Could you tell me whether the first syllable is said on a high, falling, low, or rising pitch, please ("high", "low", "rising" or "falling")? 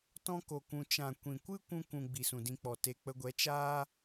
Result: high